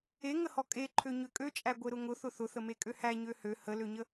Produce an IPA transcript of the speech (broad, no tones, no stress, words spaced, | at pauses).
eŋəhɔ kʼeǃʰø ɲøkʼøt͡ʃʼæ ɡʷeɾʊŋʊ θʊθʊθəme kʼøhæ ɲøhø həløɲə